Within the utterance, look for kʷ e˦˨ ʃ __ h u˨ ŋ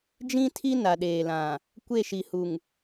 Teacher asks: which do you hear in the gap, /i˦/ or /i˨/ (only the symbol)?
i˨